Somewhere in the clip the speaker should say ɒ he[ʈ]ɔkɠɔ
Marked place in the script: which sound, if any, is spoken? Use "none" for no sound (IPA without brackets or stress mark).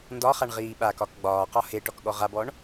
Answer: ʈ